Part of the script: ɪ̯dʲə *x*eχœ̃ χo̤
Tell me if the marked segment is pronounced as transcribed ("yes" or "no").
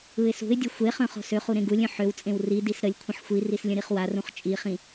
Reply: no